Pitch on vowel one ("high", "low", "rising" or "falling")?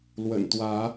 low